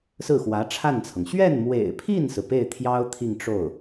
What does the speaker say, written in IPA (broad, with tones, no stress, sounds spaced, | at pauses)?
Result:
s ɹ̩˥˩ x w ä˧˥ ʈ͡ʂʰ a˥˩ n t͡sʰ ɤ˩ ŋ ɕ ɥ ɛ˥˩ n m w ḛ˨˩ ɪ̯ pʰ i˥˩ n s ɹ̩˩ p e˥˩ ɪ̯ t̪ʰ j ɑ˥ ʊ̯ t̪ʰ i˥˧ ŋ ʈ͡ʂ o˥˩ ʊ̯